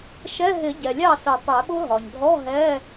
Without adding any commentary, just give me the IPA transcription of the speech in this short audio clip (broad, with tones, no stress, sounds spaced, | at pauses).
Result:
ʃ ɛ˧˥˧ ɦ ɪ˨˩˦ ɟ ɛ˩ lʲ ɑ˥˩ s ə˨˩˦ tˤ ɛ˨˩˦ ɓ ʊ˦˥ ɦ ɒ˩ ɲ dʱ ɔ˧˥˧ ɦ ɛ˧˥˧